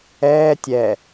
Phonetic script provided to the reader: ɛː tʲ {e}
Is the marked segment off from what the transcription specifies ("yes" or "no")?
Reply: yes